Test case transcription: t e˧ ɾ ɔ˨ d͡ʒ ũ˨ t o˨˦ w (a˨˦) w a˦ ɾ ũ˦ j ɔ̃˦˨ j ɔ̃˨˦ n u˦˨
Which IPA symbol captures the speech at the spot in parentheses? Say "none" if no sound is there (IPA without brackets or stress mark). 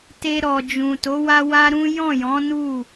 a˦